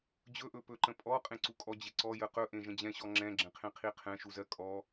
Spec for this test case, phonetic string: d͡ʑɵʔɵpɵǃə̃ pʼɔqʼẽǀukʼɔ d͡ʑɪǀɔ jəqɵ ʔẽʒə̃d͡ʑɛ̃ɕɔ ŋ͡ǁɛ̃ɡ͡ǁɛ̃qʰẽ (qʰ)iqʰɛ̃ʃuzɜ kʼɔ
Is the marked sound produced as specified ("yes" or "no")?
yes